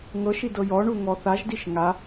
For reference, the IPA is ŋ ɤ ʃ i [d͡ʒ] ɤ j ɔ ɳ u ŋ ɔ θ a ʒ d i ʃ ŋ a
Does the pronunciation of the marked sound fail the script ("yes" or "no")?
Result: yes